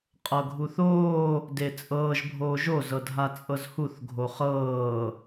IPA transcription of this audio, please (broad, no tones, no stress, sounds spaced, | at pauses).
qʼ ɤ ɡʱ u θ oː | d e t͡sʼ ɤː ʒ bʱ oː ʒ o z ɤ dʱ a t͡sʼ ɤ z h u θ ɡʱ o χ ɤː